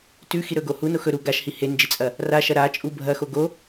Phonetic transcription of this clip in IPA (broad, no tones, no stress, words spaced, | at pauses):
tʉxiɾɵɡo huno xɵɾu ɡaʃhi hend͡ʒit͡sʼɐ | raʃɐ ɾat͡ʃʼu bʱɐxo ɡo